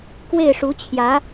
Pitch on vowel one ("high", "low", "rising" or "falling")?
falling